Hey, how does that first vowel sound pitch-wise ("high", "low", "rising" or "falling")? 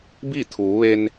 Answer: falling